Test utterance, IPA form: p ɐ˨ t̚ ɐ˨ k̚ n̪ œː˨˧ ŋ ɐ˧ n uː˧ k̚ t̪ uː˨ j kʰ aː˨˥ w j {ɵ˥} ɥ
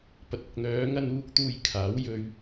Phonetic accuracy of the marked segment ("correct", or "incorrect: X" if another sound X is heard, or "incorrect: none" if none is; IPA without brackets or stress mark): incorrect: ɵ˧